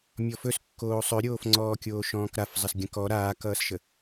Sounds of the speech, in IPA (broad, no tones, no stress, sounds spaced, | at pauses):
mʲ ɔ f ɵ s kː oː sˤ ɵ ɾʲ oː f ŋ͡ǀ ɔː kʲ oː ʃ ɔ̃ː k ɾ a f zˤ ə s ɡʲ ə̃ k ɔ ɾ aː k ʌː s ʃ ə